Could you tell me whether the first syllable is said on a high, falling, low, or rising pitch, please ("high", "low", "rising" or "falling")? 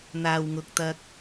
low